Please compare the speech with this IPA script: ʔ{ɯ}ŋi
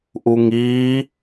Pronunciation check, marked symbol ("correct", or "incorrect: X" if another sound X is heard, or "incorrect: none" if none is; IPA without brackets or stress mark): incorrect: u